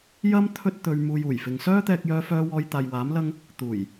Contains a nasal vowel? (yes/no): no